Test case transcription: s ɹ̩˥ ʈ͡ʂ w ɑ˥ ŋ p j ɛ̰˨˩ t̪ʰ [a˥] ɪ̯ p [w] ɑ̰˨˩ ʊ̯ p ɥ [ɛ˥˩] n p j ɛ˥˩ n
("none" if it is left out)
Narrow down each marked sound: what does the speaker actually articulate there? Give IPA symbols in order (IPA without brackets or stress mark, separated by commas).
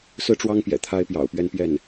a˥, j, ɛ˥